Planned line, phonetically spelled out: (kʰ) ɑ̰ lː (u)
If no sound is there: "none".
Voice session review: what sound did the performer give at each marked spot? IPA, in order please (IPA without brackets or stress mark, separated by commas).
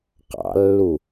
q, u